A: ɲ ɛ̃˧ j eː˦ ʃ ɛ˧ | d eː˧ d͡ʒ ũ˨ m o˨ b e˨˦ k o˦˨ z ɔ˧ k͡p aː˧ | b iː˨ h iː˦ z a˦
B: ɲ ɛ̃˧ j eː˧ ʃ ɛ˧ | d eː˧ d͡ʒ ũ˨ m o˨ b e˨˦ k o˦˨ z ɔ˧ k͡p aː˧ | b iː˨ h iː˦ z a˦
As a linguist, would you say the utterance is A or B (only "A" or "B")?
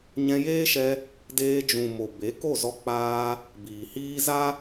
A